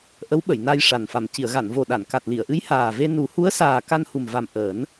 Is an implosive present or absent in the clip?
present